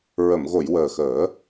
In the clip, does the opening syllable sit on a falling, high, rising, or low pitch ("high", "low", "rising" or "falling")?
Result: low